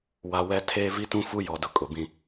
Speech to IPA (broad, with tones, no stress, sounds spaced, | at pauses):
w a˨ w ɛ˦ tʰ eː˦ v i˦ t ũ˦ f u˦ j ɔ˨ d ʊ˨ kʼ ʊ˨ b ĩ˦